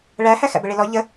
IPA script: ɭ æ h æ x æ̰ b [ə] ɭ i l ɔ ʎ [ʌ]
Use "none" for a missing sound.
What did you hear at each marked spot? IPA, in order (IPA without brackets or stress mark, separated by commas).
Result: ə, ə